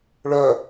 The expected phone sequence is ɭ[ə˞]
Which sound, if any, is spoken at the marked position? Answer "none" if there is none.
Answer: ɜ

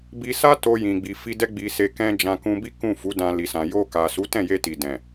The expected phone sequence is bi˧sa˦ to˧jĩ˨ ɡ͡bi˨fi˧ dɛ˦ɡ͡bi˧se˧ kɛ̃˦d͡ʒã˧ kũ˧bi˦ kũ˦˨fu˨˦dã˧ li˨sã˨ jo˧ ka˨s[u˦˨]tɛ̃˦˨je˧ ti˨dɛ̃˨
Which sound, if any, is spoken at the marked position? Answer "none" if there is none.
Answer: u˨˦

